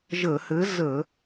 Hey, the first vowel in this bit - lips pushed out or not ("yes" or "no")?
no